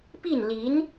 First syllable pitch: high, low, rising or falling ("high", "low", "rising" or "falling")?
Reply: falling